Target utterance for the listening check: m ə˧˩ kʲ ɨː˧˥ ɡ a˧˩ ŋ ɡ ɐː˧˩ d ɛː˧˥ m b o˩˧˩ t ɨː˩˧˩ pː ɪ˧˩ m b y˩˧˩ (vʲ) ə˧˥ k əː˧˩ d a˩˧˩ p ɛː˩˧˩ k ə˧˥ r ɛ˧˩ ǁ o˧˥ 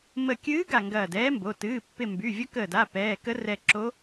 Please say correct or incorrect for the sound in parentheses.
correct